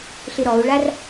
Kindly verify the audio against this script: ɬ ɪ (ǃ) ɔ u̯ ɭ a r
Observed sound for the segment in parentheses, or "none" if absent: ɾ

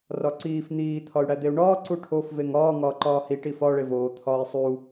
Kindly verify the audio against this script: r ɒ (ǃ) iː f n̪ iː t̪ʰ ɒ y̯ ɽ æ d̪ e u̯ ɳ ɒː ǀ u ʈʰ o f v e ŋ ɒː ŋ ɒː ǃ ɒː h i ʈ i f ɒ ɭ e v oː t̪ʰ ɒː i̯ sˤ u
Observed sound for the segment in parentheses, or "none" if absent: ǀ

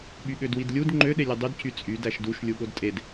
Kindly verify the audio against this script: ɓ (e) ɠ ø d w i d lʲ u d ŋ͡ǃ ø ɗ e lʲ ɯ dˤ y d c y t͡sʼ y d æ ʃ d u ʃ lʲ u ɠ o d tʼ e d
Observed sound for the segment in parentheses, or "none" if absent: y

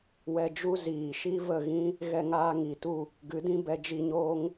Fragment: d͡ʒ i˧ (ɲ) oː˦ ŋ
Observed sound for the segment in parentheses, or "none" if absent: ɲ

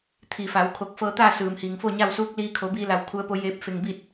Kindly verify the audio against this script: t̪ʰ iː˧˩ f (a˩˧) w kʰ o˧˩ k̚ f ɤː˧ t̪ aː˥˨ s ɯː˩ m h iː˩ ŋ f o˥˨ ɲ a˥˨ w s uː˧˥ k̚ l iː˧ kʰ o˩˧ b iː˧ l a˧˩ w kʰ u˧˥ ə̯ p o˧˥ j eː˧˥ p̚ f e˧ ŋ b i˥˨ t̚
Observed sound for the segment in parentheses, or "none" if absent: a˩˧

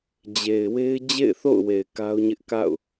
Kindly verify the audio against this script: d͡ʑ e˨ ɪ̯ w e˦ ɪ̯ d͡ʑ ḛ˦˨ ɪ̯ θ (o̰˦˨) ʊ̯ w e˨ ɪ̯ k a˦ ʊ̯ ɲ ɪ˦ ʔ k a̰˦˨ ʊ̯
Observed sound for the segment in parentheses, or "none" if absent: o̰˦˨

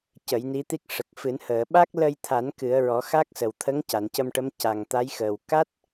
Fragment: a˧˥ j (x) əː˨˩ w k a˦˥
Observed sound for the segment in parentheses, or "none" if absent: x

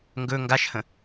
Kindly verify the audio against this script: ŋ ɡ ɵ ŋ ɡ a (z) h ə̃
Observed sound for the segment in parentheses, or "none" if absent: ʃ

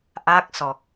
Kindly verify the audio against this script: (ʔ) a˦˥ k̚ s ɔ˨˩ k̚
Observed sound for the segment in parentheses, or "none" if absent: ʔ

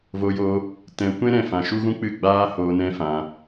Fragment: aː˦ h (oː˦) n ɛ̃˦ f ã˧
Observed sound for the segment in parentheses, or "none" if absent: oː˧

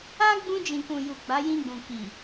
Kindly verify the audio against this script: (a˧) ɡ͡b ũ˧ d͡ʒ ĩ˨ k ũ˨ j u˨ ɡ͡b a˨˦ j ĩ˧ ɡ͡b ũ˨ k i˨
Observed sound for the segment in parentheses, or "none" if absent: a˦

